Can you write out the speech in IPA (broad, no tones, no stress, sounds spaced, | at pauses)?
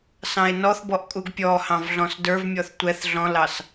s ɑ̃ e̯ n ɔ θ b ɔ ʔ kʼ u ɡ pʲ ɔ h ɑ̃ v ɮ ɔ̃ s d ə˞ v mʲ ɔ θ tʷ ɛ θ ɮ ɔ̃ l ɑ s